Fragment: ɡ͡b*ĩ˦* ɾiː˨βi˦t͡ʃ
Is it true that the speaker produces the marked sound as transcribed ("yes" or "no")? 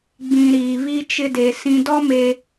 no